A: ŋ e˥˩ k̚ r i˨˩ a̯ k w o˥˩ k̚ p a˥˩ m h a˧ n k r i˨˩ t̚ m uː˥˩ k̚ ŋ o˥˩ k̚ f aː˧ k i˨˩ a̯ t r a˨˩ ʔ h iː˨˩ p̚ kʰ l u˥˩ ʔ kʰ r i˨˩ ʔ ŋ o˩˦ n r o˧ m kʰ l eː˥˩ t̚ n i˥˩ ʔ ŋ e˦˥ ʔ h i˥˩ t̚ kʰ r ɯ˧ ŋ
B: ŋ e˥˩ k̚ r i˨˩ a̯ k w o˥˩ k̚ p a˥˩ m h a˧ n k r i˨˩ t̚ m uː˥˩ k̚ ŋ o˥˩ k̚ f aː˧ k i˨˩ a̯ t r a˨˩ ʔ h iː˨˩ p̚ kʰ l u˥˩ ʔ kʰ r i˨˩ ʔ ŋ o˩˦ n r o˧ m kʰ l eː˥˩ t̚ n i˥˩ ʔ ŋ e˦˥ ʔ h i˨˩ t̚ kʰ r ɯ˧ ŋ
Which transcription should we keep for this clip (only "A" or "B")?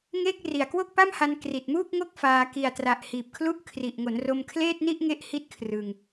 A